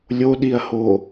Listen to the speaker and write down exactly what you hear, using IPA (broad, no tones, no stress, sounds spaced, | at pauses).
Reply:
lʲ o ɗ i ɐ̯ h o